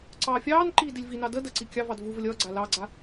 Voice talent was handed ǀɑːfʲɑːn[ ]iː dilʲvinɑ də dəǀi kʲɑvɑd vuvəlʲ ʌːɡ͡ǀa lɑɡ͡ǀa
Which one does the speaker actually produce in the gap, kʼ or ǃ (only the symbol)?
ǃ